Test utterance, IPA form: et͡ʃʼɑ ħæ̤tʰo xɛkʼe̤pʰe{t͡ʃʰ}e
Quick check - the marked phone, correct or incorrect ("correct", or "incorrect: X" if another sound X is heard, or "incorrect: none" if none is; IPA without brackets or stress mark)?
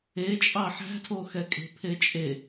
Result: incorrect: t͡ʃʼ